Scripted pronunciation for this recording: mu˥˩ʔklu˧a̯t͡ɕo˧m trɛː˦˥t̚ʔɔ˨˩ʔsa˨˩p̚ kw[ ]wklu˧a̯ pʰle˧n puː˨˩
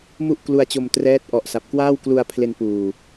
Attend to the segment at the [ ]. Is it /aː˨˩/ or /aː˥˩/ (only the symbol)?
aː˥˩